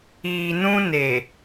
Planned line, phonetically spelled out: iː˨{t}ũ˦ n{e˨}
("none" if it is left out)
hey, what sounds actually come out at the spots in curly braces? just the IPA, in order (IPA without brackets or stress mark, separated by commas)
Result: n, e˨